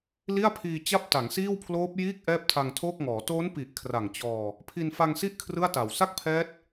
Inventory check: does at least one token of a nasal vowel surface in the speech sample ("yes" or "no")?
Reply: no